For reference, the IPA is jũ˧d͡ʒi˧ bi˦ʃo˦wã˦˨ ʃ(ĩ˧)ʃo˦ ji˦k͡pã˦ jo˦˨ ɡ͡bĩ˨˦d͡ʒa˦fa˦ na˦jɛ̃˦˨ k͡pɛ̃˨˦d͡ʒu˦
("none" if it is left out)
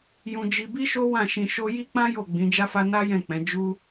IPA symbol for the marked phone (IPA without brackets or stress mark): ĩ˧